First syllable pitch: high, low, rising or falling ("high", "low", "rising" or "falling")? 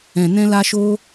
low